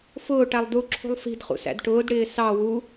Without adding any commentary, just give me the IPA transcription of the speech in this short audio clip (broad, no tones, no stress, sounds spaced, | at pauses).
f ʊː ʈ æ lˠ d u ǁʰ ṳ lˠ f i̤ d χ ṵ s æ̰ d ʈ ʊː d ɽ ɪː s ɑ w u